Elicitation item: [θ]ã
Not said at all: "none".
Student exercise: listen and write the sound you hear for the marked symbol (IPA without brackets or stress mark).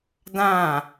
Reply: d